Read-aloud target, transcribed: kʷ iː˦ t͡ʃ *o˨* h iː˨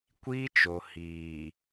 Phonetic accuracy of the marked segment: correct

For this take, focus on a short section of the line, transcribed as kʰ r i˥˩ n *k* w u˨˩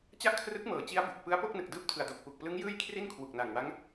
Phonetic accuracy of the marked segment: incorrect: kʰ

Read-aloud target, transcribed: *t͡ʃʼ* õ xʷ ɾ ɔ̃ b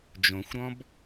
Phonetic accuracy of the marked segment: incorrect: d͡ʒ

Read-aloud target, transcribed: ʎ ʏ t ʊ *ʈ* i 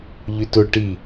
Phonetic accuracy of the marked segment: correct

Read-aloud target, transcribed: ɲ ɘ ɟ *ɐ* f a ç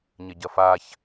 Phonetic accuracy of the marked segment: correct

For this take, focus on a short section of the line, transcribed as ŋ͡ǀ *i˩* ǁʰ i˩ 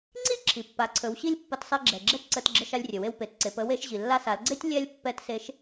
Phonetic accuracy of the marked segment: incorrect: i˥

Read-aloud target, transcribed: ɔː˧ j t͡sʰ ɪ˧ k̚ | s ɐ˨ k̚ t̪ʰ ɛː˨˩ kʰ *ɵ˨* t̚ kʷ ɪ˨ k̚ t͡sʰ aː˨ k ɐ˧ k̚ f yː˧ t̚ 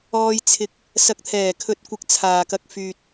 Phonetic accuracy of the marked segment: correct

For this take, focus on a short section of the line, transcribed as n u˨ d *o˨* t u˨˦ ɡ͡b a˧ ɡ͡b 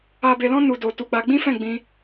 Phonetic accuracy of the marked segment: correct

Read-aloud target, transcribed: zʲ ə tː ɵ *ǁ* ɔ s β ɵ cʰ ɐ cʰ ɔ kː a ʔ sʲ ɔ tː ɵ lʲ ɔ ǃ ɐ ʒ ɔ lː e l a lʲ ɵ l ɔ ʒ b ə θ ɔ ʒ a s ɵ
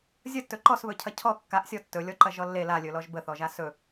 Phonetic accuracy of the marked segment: incorrect: ǃ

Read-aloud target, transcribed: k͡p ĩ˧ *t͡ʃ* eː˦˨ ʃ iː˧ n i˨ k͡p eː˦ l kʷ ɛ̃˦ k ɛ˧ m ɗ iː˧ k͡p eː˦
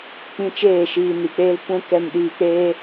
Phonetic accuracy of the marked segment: correct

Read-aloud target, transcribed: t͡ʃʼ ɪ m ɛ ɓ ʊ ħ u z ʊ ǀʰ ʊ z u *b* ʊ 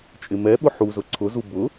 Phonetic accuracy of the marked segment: correct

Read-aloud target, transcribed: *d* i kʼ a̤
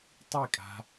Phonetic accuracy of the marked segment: incorrect: tˤ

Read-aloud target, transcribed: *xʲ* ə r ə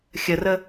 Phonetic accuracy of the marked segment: correct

